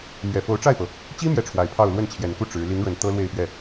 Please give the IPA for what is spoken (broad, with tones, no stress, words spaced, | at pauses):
mɥɛ˨˩fo˧˥ʊ̯ʈ͡ʂa˥˩ɪ̯pɤ˩ | t͡ɕi˥ mjɛ˥˩ʈ͡ʂʰwa˨˩ɪ̯pʰɑ˥˧ʊ̯ lwə˥˩nt͡ɕʰjɛ˨˩nku˥˩ ʈ͡ʂɻ̩˧˥ li˧˥ŋɻə˨˩n t̪ɤ˥lwe˥˧ɪ̯pɥɛ˥˩